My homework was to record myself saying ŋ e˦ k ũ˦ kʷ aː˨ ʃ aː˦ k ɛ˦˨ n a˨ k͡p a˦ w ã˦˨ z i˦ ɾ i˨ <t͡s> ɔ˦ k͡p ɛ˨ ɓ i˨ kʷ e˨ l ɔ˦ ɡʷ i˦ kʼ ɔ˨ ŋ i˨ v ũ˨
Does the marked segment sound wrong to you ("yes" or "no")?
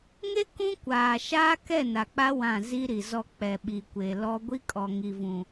yes